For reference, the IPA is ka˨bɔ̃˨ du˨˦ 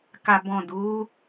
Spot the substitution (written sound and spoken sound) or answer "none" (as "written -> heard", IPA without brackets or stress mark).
none